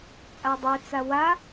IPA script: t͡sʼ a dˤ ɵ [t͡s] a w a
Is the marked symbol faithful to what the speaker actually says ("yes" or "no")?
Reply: yes